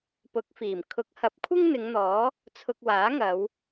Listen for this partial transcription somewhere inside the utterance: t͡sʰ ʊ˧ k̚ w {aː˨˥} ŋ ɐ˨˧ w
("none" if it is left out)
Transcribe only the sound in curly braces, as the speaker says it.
aː˨˥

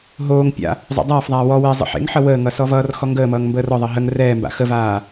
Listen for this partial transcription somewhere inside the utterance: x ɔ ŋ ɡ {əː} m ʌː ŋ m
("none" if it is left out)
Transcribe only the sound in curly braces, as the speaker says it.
əː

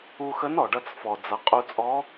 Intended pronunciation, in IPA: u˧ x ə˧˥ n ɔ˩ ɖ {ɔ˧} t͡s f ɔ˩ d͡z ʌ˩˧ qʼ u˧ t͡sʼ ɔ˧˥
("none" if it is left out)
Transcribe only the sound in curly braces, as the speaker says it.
ʌ˧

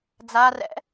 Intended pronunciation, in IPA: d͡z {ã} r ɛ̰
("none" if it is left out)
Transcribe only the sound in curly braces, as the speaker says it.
a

